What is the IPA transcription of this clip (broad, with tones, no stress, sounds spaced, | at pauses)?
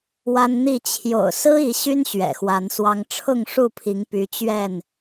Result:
w a˦ n n̪ i˥˨ t͡ɕʰ j o̰˨˩ ʊ̯ s ɹ̩˦ i˨˦ ɕ y˦ n ɕ ɥ ɛ̰˨˩ x w a˨˦ n s w ɑ˦ ŋ ʈ͡ʂʰ ʊ˥˨ ŋ ʂ u˥˨ pʰ i˨˦ ŋ p y˨˦ t͡ɕ ɥ ɛ˥˨ n